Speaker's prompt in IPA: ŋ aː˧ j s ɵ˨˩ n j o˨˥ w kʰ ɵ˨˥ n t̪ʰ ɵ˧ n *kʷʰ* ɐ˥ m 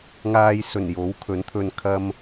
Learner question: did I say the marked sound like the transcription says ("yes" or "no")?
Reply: no